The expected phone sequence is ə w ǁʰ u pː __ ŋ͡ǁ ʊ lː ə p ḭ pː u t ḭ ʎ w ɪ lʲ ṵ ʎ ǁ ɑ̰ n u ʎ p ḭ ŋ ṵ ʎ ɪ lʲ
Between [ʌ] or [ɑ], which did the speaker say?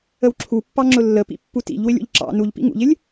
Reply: ɑ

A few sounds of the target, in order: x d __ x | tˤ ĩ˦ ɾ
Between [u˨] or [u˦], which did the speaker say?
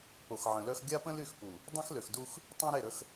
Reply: u˦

